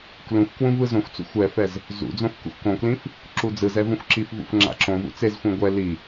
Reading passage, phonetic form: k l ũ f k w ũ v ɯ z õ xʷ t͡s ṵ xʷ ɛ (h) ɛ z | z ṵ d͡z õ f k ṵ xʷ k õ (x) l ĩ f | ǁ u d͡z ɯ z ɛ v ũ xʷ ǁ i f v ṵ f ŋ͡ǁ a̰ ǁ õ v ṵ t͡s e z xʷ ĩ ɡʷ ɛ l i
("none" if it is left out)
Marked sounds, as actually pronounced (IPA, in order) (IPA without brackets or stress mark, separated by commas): f, k